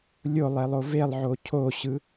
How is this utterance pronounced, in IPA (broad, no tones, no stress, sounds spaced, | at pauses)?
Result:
lʲ o lˠ e lˠ o v e lˠ ʕ o cʰ o ɕ ɯ